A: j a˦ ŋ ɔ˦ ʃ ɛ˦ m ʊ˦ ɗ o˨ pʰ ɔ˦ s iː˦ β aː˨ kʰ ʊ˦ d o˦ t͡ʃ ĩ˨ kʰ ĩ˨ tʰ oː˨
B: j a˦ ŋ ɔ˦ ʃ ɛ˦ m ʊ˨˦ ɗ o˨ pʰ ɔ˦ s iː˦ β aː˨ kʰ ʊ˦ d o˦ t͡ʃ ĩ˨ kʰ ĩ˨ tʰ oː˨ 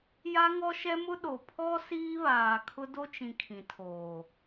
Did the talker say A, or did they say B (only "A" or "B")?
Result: A